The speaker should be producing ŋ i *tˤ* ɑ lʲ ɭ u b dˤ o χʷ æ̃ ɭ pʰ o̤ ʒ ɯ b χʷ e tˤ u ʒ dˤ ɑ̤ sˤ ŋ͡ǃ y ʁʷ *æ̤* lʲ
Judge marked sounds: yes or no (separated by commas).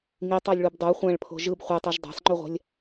yes, yes